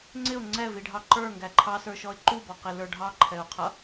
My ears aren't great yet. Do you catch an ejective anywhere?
no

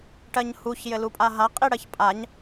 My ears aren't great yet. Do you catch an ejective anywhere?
yes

